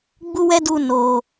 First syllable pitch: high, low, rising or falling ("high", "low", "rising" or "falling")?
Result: high